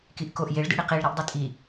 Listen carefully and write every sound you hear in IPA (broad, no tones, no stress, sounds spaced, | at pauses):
k i ʔ k o ʔ j e ɭ d ḭ ɽ i q i ɭ ɾ i ʔ dˤ i tʼ i